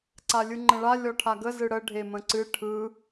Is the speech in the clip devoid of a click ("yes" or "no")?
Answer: no